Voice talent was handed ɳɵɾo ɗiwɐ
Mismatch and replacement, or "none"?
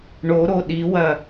ɵ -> o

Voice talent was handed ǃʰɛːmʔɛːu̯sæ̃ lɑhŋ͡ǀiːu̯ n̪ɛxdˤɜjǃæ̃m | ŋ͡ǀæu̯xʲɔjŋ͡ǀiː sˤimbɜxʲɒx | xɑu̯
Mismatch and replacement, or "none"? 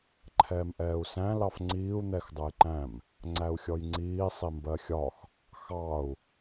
h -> f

